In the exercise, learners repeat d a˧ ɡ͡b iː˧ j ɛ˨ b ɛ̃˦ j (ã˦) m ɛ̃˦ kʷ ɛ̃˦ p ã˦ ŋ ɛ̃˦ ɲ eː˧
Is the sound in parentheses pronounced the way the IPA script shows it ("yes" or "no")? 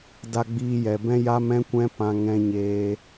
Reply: no